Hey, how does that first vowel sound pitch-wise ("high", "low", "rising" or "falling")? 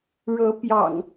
rising